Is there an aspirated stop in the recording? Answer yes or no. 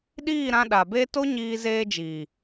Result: no